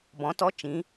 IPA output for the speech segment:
b ɔ̃˩˧ t ɔ˨˥ t͡ʃ ĩ˩˧

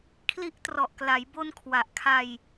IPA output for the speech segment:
kʰ l i˦˥ ʔ t r ɔ˨˩ ʔ k l a˩˦ j b o˧ n kʰ w a˨˩ ʔ kʰ a˧ j

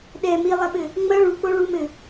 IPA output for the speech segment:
ɗ ɛ m i lˠ ɐ ɓ ɘ | ŋ͡m ɐ ɭ u k͡p o ɭ u m ɘ

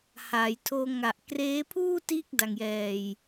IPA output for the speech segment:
h aː˩˦ j tʰ oː˧ ŋ a˨˩ ʔ k r eː˦˥ pʰ uː˥˩ t iː˥˩ k̚ d a˨˩ ŋ j ɛː˨˩ j

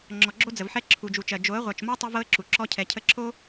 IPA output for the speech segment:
ŋ͡ǁ ɔ˨ ɡ͡ǁ o˦ d͡z ə˨ v ħ ɛ˦ ǁʰ u˨ d͡ʒ u˨ t͡ʃ ɜ˨ d͡ʒ o˨˦ ə̯ ʁʷ ɜ˨ t͡ʃ m ɔ˦ tˤ u˦ v ɤ˦ ə̯ ǁ u˨ ǁ ɔ˦ cʰ ɛ˨ cʰ ə˦ ǁʰ o˦

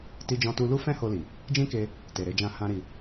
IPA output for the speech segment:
t i˦ d͡ʒ ɔ̃˦ t u˦ l u˦ f ɛ̃˦ h o˧ l i˨ | d͡ʒ ĩ˦ k e˧ | t e˨ ɾ e˧ d͡ʒ ã˧ h ã˦ ɾ i˧

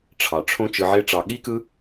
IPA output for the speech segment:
ʈ͡ʂʰ ɑ˩ ʈ͡ʂʰ õ˦ t͡ʃ ɯ˨ ʕ e˦ ʈ͡ʂ ɑ˨ ɠ i˥ k ɯ˦

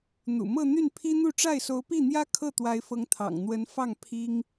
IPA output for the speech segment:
n̪ ṵ˨˩ m ɤ˥˧ n̪ y˥˩ n pʰ i˥ n̪ u˥˧ ʈ͡ʂ a˥˩ ɪ̯ s o˧˥ ʊ̯ p i˥˩ n̪ j ä˥ kʰ ɤ˥˩ t̪ w a˧˥ ɪ̯ f ɤ˧˥ ŋ t̪ʰ ɑ̰˨˩ ŋ n̪ w ə˧˥ n f ɑ˥˩ ŋ pʰ i˥ ŋ

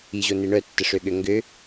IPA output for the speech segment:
i ʑ o n e ɳ œ tː ə ʂ ø ɠ ø ŋ ɡ ø

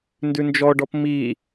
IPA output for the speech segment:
n d ʉ n d͡ʒ ɔ ɖ ɔ p m i

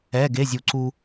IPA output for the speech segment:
ɛ˧˥˧ ɡ e˧˥˧ zʲ u˧ ǀ u˧

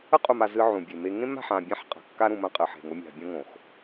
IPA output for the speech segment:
ə˦ qʼ u˨ m a˨ z ɨ˦ ʕ ũ˨ bʲ e˨ m e˦ ŋ ẽ˦ m a̤˨ ħ ã˨ bʲ ã˦ ħ qʼ a̤˨ kː a˦ ɾ ũ˨ m ə̃˦˨ qʼ ɨ˨ ħ e̤˨ ŋ o˦ mʲ a̤˨ bʲ õ˦ ŋ õ˨ x

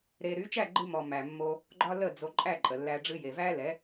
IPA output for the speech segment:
ɾ e˧ ɾ y˨˦ t͡ʃ æ˦˨ ɡ͡ǃ ɨ˧ m ɔ˨ m æ˨ mː o˧ | ɡ͡ǃ ɒ˦ l ə˦˨ d͡z o˧ ǃʼ æ˦˨ ǃʼ ə˨ lː æ˧ ɖ͡ʐ ɨ˧ j e˨ v æ˦ l ɛ˨˦

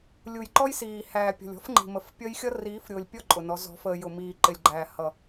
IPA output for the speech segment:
lʲ u˨ j ǃ ɔ˦ j s iː˨ h æː˨ pʲ ɔ̤˨ lʲ ɔ̤˦ f ŋ͡ǃ i̤˨ m ə˨ f pʲ ʌ˦ j xʲ ʌ˦ r iː˨˦ f ɾʲ ʊː˨ lʲ pʲ ɔ˦ ǃʼ ʊ˨ n ɔ˨˦ z ɔ̤˨˦ f əː˨ j ʊ˨ m iː˨ ǃ ɪ˨ lʲ ɡ͡ǃ æː˨ h ʌ˨

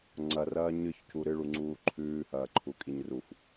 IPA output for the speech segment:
ŋ͡ǀ ɐ r ɐː ɲ ɨ ç c u ɾ ɨ ɭ u ŋ͡ǀ uː ǃʰ ʉː h ɐː ǃʰ u kʼ i ɲ r u f

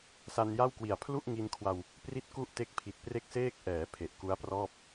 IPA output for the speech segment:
s a˧ n j a˥˩ w k w i˨˩ a̯ pʰ l u˥˩ ʔ ŋ i˧ n kʰ w a˧ w | p r i˥˩ t̚ k u˥˩ ʔ t e˦˥ k̚ pʰ i˨˩ t̚ p r e˥˩ k̚ s eː˥˩ k̚ ʔ ɛː˩˦ pʰ e˨˩ ʔ k u˦˥ a̯ p r ɔː˥˩ p̚

